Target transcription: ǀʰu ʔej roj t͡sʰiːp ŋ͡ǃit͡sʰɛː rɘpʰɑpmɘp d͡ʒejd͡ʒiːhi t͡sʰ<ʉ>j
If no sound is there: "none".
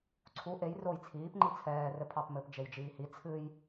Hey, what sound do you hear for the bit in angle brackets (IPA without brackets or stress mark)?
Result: ɨ